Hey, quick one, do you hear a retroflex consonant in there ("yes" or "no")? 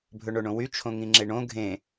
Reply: yes